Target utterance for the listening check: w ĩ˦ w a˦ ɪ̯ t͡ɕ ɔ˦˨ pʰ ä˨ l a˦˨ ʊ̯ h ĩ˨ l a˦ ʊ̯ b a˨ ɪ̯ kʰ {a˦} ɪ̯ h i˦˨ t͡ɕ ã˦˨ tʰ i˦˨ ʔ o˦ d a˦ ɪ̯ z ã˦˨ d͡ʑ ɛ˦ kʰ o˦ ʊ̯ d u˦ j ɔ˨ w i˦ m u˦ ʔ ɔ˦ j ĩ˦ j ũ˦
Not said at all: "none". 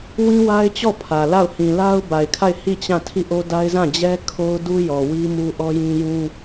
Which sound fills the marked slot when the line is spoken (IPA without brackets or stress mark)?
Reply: a˦˨